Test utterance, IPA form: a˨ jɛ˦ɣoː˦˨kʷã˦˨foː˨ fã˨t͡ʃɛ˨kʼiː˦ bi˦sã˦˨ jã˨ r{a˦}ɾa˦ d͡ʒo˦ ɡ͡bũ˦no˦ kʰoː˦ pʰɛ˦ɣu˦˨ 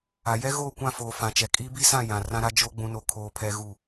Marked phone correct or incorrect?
incorrect